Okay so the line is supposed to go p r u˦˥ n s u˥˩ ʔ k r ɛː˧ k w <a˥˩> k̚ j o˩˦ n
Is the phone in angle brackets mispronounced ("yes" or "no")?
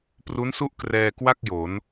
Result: no